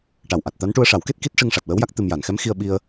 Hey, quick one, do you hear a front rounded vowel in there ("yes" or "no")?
no